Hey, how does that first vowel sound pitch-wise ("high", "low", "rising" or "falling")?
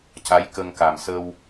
rising